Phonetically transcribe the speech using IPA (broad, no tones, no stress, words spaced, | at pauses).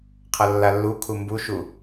qʰɐlːalːu kʰumbuʃu